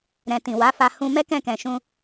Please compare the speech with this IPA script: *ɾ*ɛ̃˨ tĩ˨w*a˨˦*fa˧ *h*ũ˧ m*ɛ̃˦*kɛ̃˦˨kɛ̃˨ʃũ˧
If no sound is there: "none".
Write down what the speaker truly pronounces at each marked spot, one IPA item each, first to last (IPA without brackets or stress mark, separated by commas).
ɾ, a˨˦, h, ɛ˦